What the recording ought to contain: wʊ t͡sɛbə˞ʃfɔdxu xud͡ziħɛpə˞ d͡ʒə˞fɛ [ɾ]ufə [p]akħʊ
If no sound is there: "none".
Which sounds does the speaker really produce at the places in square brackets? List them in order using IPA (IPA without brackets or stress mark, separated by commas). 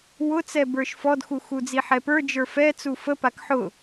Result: t͡s, p